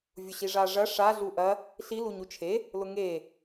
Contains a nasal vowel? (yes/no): no